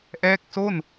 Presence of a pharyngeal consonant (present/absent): absent